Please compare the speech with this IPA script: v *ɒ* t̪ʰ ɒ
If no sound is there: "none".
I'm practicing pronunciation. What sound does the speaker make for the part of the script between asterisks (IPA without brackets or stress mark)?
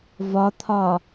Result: ɒ